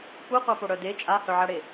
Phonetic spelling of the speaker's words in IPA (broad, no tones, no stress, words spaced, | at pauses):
kʷœqʷapo ɽœde t͡ʃʼahœʕaɽe